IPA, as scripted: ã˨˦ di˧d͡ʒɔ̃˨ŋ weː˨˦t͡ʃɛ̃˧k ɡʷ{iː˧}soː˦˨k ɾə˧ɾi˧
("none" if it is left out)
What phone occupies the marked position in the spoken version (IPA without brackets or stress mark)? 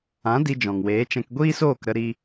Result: iː˦